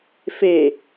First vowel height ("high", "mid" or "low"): mid